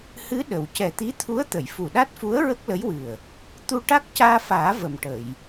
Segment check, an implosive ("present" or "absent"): present